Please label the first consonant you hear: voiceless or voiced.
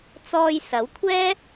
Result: voiceless